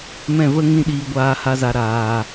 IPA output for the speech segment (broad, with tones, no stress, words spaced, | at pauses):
mɛ̃˦˨və˦ ŋĩ˦ɗiː˧ ɡʷaː˦ha˦za˧ ɾaː˨